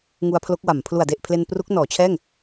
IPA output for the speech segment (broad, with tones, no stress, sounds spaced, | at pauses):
ŋ u˧ a̯ pʰ l o˦˥ k̚ w a˩˦ m pʰ l u˨˩ a̯ d e˨˩ ʔ pʰ l e˧ n p r u˦˥ k̚ n ɔː˩˦ t͡ɕʰ ɛː˥˩ ŋ